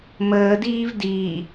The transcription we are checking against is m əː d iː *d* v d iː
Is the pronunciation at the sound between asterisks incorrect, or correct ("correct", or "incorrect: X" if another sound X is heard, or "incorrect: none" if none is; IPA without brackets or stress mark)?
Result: incorrect: none